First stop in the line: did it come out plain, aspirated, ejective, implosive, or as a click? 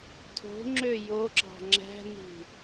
aspirated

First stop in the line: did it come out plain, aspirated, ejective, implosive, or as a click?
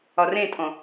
ejective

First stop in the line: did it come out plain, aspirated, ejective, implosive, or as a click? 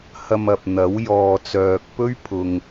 plain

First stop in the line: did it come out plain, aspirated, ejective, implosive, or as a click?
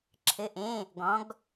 click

